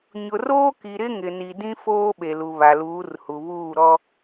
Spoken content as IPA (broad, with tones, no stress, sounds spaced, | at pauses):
ɲ ʊ˨ r oː˦ k i˨ ɾ ɪ˦ ŋ ɪ˨ n i˨ d ĩ˦ f oː˦ ɓ e˨ l u˨ β a˨ l uː˨˦ r h u˨ β uː˦˨ ɾ ɔ˦